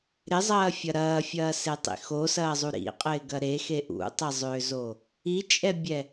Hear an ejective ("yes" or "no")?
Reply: yes